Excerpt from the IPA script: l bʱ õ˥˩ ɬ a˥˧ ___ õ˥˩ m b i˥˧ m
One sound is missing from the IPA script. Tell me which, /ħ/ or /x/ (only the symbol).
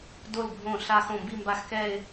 x